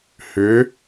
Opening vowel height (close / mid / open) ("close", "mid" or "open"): close